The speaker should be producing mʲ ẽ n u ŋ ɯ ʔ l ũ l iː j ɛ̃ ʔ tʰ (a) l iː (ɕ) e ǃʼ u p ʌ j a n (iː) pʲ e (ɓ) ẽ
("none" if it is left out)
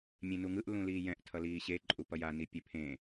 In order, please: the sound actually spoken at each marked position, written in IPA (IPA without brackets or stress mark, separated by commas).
ʌ, ɕ, i, pʰ